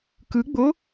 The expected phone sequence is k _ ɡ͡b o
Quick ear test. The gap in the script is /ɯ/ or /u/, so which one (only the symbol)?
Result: ɯ